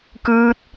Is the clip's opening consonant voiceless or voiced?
voiceless